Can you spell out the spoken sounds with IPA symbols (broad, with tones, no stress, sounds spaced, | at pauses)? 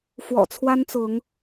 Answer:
f w ɔ̰˨˩ t͡sʰ w a˦ n t͡s ʊ˨˦ ŋ